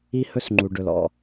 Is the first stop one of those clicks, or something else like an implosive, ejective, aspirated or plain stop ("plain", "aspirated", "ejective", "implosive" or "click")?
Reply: click